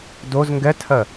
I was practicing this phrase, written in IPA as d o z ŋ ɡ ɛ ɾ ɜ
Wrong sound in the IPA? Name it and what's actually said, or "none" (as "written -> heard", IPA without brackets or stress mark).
ɾ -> tʰ